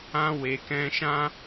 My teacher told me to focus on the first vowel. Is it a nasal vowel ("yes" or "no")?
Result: yes